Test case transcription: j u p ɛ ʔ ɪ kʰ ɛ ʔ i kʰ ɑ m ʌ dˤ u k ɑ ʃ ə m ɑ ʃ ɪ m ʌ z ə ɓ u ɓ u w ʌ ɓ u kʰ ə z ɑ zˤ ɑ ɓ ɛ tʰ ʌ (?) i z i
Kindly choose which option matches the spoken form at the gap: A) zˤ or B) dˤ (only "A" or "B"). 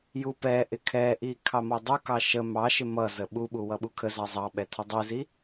B